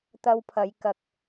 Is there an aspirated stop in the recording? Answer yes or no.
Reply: yes